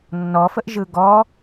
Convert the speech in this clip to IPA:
nːɔfəʔ ʒɯɡɔ

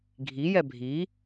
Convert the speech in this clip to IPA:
ɡʱijɛ bʱi

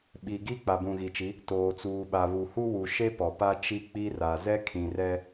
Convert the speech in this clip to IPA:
ɓi˨ɡi˦ k͡pa˨bũ˨ɣi˨t͡ʃi˨˦ | toː˨t͡suː˨ɓa˨ βu˨hu˦wu˨ ʃe˦pɔ˨ pa˦t͡ʃi˦k͡pi˦ra˨ zɛ˦kʰĩ˨rɛ˦

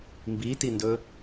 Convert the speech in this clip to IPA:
mbitindɵ

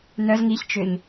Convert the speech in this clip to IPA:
nœz ŋiçt͡ʃʏɲ

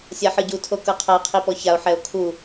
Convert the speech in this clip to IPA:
sʲaħɯɟu tʰokɤqʰa qʰipɔçao̯ ħɛo̯kʰu

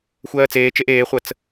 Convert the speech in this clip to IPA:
xʷɜːt͡seːt͡ʃeʔ eːχʷət͡s

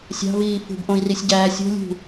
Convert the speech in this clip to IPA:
sʲɑ̤viː fṳbʔõi̯risʲ ɟæːsʲo̤lʲṳ

